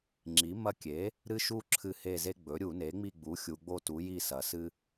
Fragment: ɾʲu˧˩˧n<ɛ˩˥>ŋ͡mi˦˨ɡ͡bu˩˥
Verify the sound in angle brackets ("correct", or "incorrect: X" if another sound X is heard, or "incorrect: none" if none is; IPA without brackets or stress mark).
incorrect: e˩˥